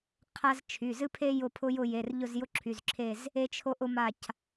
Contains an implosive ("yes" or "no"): no